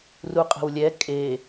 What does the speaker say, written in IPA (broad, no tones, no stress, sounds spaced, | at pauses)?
r u qʼ ə̤ w lʲ ɛ kʼ e